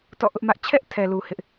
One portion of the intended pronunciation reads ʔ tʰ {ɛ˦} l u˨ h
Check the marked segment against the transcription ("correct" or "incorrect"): incorrect